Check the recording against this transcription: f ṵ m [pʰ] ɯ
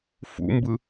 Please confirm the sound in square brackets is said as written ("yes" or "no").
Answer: no